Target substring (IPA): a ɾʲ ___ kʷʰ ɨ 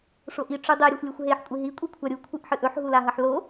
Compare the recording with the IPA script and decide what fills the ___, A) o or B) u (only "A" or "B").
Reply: B